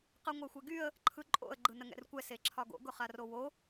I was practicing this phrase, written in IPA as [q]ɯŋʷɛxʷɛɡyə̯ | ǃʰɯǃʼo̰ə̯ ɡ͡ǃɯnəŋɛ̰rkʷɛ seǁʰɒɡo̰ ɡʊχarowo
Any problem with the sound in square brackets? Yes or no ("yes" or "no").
no